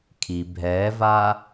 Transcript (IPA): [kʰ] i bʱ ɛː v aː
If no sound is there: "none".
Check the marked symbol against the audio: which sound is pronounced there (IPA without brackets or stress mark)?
kʰ